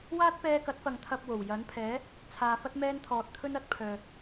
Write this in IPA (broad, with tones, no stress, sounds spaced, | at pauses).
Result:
w aː˥ t̚ p ɛː˧ k ɐ˨˥ t̚ f ɐ˨ ŋ t̪ʰ ɐ˨ p̚ w o˨˩ w j ɐ˨˥ n pʰ ɛː˨˥ | t͡sʰ aː˨ f ɐ˧ t̚ m ɛː˧ n t̪ʰ ɔː˨ t̚ t̪ʰ ɵ˧ n ɐ˨˥ t̚ pʰ œː˨